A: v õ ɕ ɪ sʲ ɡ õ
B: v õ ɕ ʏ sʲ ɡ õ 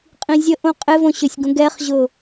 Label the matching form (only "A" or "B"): B